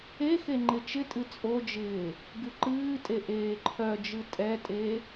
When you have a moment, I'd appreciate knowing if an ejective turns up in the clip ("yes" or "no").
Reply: yes